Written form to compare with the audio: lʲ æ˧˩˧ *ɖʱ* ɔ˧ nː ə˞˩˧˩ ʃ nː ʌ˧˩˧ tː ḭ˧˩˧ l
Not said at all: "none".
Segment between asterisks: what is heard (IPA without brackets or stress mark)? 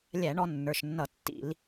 ɳ